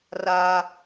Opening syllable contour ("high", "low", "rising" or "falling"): high